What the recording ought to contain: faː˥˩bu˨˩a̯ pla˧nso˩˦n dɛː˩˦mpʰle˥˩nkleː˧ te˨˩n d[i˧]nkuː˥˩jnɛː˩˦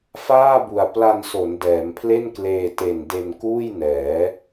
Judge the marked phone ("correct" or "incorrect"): incorrect